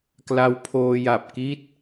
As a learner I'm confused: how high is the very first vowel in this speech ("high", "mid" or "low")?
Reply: low